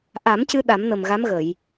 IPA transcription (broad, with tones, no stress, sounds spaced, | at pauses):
ʔ a˨˩˦ m c ɨ˧ ɗ a˨˩˦ m n ə˨˩ m ɣ a˧˥ m ɣ ə˨˩˨ j